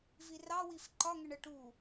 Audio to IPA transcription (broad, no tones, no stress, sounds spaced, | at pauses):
v i r ɑ w i f ǃ ɒ ŋ ə ɳ ə ʈ u